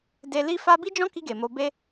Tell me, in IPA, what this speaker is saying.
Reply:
d e˧ l i˦ f a˦ b i˦ d͡ʒ ɔ̃˦ k i˧ ɡ e˨ m o˧ b e˦

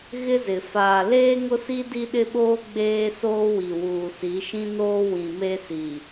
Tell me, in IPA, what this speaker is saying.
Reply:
ɣ ɪ˦ z ɪ˨ f aː˨ l eː˦ ŋ ʊ˦ s i˦ d i˦ ɗ ɪ˦ ɓ oː˦ ɡ͡b eː˦ s oː˦ w i˨ w uː˨ s i˨˦ ʃ ĩ˦ n oː˦ w ĩ˨ m e˦ s i˨

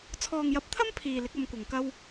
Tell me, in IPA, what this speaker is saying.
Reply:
t͡sʰ ɔː˨ ŋ j ɐ˨˥ p̚ t̪ʰ ɐ˥ m pʰ iː˨ l ɪ˨˥ k̚ ɐ˧ m kʷ ɐ˨ ŋ k ɐ˥ w

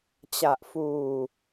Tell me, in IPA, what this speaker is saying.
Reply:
t͡ɕ a˨˩ ʔ f uː˨˩

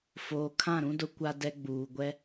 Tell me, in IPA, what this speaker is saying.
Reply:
f oː˨ kʰ ã˦˨ ɾ ũ˦ d ʊ˦ kʷ a˦ d ɛ˦ ɡ͡b uː˨ ɡʷ ɛ˦

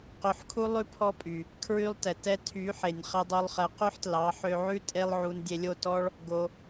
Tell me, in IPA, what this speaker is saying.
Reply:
q ø˧ ħ kʰ u˦ lˠ ʉ˦ pʰ ɔ˦ pʼ y˨ | kʰ ɹ y˦ lˠ t ɛ˨ t ɛ˦ tʰ y˨˦ ħ e˨ nʲ χ ɛ˧ dˤ o˧ lˠ χ ɛ˨˦ q ʉ˦ ħ t l ɑ˨˦ ħ ø˧ ʕ ʉ˦ tʼ e˦ lˠ ʕ u˧ n dʲ e˧ lʲ o˦˨ t ɔ˦ ɭ | ɡ o˧

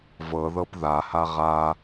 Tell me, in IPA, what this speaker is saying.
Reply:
v ɤ ð ɤ p ð a h a ʁ a

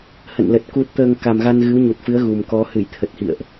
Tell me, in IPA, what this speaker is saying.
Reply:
h ə̰˧˨ n l ə˨˩ t̚ k u˨˩ t̚ t̪ əː˨˩ ŋ k a˨˩ m ɣ a˧ n ɣ ɨ˨˦ w ɲ u˨˩ t̚ f ɨ˨˦ ə̯ ɣ u˨˩ m k ɔ˨˦ h ɨ˧˩ j t̪ʰ ə˨˩ t̚ h ḭ˧˨ ə̯ ʔ

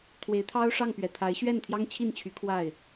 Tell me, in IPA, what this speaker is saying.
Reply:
t̪ʰ w e˧˥ ɪ̯ t̪ʰ ɑ˥ ʊ̯ ʂ ɑ˥˩ ŋ p ɥ ɛ˨˩ t̪ʰ a˧˥ ɪ̯ ɕ ɥ ɛ˥˩ n t̪ʰ j ɑ˥ ŋ t͡ɕʰ i˥˩ n t͡ɕʰ y˧˥ kʰ w a˥˩ ɪ̯

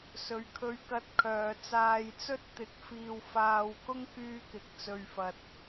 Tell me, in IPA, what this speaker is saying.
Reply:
s ɵ˨˧ ɥ kʰ ɵ˧ ɥ k ɐ˧ t̚ kʰ œː˨ t͡s aː˧ j t͡s ɵ˥ t̚ t̪ ɪ˧ k̚ f iː˧ w f aː˧ w k ʊ˥ ŋ k yː˥ k ɪ˧ k̚ t͡s ɵ˧ ɥ f ɐ˧ t̚

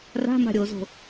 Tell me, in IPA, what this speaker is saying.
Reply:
r a̤ m a̤ ɾʲ o z o̤

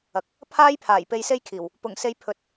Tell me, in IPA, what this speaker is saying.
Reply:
ɐ˨ k̚ | pʰ aː˥ j pʰ aː˨˩ j p e˧ j s e˥ j kʰ iː˨˩ w | p ʊ˨˩ ŋ s e˨˧ j pʰ ɵ˧ t̚

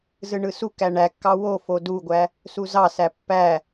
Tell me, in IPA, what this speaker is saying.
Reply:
z ɯ ɳ ɯ s u k æ ɳ æ kː ɑ w o f o d u ɡʷ æ | s u z ɑ s æ pː æ

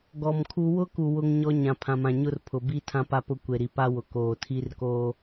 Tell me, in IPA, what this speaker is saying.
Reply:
ɡ ɔ˨ m kʰ u˦ w ʊ˦ k u˨ w ʊ˦ ŋ ɲ ɔ˦ ɲ ã˨ pʰ ã˨ m ã˨ ɲ ʊ˦ r pʰ ʊ˨ b i˦ tʰ ã˦ p a˦ p ʊ˦ kʷ e˨ ɾ i˨ p a˦ w ʊ˨ k oː˨ tʰ i˦ r k oː˦

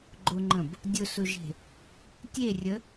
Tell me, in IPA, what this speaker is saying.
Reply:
ɡ͡ǃ ʊ ŋ͡ǃ ə̃ b | dʲ ʊ s ʊ ʒ e̤ | tʲ e rʲ ə

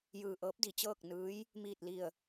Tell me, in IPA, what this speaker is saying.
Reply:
j ɯː˧˩ ʔ ɤː˧˥ p̚ d i˩ t͡ɕ ɤː˥˨ k̚ n ɯː˧˥ j | m iː˧˩ t̚ l i˧˩ ə̯

